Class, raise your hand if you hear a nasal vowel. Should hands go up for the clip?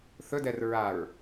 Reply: no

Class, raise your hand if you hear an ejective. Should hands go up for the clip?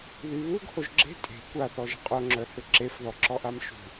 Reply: yes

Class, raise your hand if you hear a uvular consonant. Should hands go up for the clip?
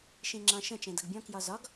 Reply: no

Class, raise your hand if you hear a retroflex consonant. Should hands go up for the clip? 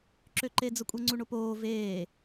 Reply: yes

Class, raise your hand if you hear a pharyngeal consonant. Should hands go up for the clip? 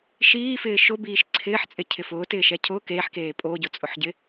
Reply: yes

